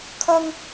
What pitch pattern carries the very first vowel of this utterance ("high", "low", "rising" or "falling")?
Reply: high